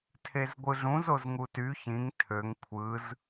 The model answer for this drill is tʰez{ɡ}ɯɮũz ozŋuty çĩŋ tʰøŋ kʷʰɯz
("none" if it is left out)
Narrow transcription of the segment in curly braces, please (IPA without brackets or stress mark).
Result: ɡʷ